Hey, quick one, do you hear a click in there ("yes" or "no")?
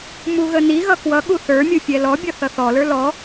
no